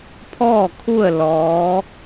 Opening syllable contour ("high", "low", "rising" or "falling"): falling